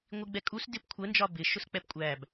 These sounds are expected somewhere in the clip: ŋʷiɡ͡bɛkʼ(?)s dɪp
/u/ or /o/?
u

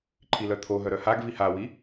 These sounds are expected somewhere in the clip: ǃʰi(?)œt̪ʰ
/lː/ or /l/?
l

